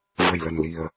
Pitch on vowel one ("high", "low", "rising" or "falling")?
low